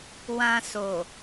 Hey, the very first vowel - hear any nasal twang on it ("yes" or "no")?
yes